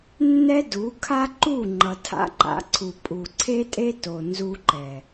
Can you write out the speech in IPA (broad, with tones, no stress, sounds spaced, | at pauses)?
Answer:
nː ɛ˦ d u˨˦ kʰ a˦ ǃ u˦˨ ŋ͡ǃ ʌ˨ tʰ a̰˦ ǃ a̰˧ ǀʰ u˨ pʼ u˨ ǀʰ e˦ tʼ e˦ t o˨ n z u˧ ǃ ɛ˨